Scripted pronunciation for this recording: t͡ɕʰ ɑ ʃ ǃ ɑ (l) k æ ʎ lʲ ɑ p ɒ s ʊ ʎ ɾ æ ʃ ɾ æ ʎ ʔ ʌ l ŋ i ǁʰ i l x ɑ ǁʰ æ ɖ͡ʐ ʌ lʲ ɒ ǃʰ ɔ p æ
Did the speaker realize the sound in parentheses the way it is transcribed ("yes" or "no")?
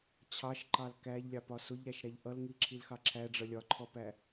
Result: yes